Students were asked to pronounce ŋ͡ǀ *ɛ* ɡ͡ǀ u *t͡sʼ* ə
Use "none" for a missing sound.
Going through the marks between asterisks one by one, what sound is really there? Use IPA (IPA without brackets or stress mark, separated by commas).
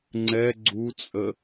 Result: ɛ, t͡sʼ